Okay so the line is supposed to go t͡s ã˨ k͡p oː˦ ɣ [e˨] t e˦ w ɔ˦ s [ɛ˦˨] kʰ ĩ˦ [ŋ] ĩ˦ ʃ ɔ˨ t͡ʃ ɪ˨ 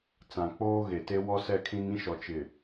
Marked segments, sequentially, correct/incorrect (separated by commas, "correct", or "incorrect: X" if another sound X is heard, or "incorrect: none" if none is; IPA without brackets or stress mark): correct, correct, correct